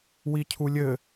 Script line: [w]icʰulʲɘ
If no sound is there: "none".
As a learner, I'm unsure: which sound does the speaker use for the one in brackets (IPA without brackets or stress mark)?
w